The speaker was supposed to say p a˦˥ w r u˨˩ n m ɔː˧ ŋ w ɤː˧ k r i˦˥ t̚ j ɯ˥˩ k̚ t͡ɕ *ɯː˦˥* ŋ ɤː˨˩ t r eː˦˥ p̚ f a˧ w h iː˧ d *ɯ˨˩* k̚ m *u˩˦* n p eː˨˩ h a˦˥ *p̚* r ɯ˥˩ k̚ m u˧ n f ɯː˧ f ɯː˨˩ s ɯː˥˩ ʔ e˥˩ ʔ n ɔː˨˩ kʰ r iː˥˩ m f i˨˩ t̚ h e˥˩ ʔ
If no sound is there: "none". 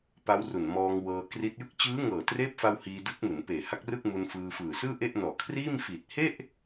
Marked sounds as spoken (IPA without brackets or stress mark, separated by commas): ɯː˦˥, ɯ˦˥, u˩˦, k̚